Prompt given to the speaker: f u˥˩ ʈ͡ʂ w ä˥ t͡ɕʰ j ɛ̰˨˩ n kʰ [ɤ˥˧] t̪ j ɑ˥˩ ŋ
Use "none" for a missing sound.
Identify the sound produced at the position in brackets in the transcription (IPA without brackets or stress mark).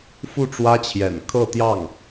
ɤ˥˧